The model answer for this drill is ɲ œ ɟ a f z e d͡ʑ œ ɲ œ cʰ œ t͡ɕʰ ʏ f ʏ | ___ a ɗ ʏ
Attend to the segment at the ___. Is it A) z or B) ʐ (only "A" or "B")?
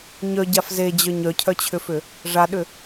B